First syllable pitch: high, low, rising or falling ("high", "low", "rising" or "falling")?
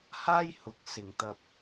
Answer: high